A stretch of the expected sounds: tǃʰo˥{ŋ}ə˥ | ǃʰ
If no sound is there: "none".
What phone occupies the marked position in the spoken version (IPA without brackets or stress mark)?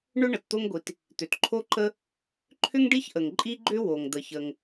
ǃ